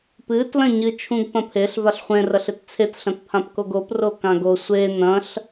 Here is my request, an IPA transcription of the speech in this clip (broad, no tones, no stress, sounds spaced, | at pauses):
p ɨ t l ɐ̃ ɲ ɨ t͡ʃʰ ũ ɡ p ɐ̃ pʰ e ɬ v a ɬ χʷ ẽ r ɐ ɬ e t t͡sʰ e t ɬ ɐ̃ t pʰ ã p k o ɡ o p r o k ã ɡ o sʷ e n ɐ̃ ɬ